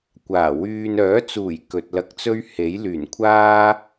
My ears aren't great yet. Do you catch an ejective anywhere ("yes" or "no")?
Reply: no